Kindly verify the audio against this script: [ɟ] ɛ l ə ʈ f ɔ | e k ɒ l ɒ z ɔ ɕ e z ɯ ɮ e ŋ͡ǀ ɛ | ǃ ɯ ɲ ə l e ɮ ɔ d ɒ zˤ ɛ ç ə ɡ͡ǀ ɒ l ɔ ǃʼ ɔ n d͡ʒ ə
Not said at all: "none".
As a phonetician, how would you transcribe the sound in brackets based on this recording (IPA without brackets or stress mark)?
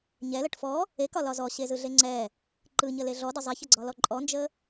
ɲ